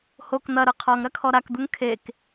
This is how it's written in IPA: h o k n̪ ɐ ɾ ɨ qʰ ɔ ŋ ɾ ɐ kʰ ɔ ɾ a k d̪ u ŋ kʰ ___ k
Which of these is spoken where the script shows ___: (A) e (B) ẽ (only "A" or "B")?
A